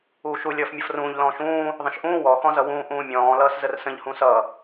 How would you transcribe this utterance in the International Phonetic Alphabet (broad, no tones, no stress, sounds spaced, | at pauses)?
uː ʃ u lʲ ʌː f mʲ ʌ f r ũː ʎ l ɔ̃ː ʃ ũː | ðˤ ə̃ ʃ ʔ ũː w ɔ x ɔ̃ z ʌ w ũː ʔ ũː mʲ ɔ̃ː l ʌː s z ə r s ə̃ ʎ h ũ s ʌ